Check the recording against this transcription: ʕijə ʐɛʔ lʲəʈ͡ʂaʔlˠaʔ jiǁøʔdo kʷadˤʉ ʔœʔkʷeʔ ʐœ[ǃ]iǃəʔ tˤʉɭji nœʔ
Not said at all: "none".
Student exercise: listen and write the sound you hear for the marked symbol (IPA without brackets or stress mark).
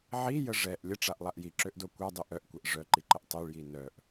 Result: ǃ